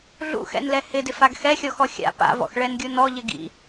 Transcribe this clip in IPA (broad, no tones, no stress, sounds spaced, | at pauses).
ɮ ṵ x ɛ̰ n l ɛ h ɪ d ɪ f a ɡ x ɛ xʲ ɔ x ɔ xʲ a̰ p a̰ v ɔ̰ x ɭ ɛ n ɡʲ u n ɔ ʎ ɪ ɡ ḭ